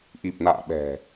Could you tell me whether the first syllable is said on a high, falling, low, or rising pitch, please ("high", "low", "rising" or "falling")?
low